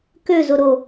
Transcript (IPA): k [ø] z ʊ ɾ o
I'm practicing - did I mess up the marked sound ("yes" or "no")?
no